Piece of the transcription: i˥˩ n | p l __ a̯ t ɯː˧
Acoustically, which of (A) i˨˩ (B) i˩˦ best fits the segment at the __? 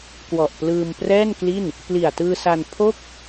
A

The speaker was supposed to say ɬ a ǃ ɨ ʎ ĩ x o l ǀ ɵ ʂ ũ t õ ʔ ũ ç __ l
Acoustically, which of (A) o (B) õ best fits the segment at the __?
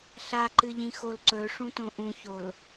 A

